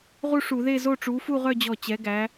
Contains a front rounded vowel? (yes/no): yes